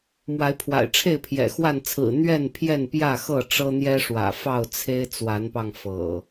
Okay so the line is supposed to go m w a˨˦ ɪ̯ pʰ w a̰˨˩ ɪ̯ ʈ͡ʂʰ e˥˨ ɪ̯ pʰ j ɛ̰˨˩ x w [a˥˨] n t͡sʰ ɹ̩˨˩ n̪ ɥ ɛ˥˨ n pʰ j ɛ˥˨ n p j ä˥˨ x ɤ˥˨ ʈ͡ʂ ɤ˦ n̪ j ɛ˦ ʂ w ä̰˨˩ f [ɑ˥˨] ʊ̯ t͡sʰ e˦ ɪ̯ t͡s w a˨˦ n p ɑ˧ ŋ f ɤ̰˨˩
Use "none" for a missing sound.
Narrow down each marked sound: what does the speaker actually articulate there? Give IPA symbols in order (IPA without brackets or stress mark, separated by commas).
a˥˨, ɑ˥˨